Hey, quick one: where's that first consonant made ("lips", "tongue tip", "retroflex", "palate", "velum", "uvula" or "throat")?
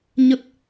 palate